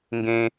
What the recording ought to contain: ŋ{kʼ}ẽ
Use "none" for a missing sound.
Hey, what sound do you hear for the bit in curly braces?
ɡ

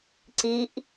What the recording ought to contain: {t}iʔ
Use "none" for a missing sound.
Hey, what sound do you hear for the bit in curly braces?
ǀ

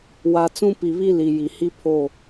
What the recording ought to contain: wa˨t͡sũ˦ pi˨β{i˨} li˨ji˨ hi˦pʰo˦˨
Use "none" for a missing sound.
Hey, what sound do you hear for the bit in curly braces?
i˦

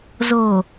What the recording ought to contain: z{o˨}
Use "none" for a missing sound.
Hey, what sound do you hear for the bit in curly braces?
o˨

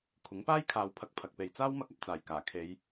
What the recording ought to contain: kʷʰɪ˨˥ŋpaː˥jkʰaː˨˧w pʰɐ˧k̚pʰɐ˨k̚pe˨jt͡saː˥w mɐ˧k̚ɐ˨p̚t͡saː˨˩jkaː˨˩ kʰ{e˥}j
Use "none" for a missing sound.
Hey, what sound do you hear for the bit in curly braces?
e˨˧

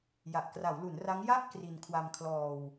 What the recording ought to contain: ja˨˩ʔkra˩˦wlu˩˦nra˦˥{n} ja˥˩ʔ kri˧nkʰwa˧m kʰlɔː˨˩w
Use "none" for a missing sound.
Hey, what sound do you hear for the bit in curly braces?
ŋ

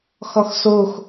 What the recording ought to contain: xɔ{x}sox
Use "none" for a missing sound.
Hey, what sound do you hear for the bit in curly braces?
x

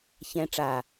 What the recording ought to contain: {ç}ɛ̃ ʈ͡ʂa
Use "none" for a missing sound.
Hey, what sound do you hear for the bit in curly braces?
ç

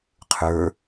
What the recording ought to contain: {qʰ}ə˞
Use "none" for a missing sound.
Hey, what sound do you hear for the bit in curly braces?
qʰ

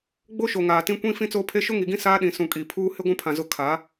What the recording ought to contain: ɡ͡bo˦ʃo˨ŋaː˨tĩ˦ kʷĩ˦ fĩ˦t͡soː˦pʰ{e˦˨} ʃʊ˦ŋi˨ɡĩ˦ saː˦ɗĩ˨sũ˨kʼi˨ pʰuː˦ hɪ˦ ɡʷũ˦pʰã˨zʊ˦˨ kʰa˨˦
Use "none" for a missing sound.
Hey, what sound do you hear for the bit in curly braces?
e˦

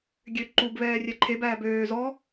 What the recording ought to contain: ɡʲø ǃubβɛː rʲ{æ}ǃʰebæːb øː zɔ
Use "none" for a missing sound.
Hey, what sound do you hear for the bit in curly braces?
ɛ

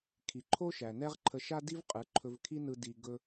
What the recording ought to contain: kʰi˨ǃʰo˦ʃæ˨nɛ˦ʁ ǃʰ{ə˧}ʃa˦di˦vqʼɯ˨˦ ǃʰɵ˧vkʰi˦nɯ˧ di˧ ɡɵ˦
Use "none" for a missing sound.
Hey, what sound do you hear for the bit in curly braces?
ə˧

